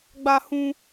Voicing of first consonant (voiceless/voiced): voiced